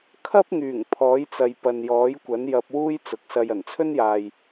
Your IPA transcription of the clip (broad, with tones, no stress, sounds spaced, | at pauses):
kʰ ɐ˥ p̚ ŋ yː˨˩ ŋ pʰ ɔː˨˥ j t͡s ɐ˨ j p ɐ˨ n j ɔː˨˥ j kʷ ɐ˨˥ n j ɐ˧ p̚ w uː˥ j t͡s ʊ˨ k̚ s ɐ˧ j ɐ˨˩ n t͡sʰ ɵ˥ n j aː˨ j